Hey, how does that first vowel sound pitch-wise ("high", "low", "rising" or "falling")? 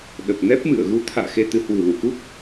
low